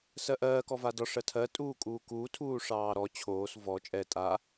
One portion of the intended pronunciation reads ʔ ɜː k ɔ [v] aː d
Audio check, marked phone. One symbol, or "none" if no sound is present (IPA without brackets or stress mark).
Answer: v